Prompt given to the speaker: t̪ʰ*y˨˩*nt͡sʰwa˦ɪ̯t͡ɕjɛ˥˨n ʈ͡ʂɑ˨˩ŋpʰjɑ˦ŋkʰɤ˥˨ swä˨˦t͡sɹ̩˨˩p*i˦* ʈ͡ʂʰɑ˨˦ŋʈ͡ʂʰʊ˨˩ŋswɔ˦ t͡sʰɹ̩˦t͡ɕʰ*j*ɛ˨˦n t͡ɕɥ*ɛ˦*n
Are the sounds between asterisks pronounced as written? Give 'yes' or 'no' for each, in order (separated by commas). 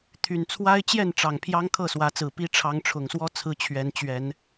yes, yes, no, no